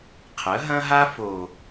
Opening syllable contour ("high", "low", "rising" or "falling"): rising